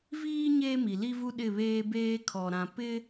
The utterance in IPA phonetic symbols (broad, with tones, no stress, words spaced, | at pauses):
viː˦ ɲeː˦mi˨li˦vu˦ ɗɪ˦˨βeː˦beː˦ kʰɔ˨ ɾã˨ pɪ˦